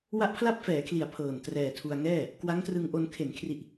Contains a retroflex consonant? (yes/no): no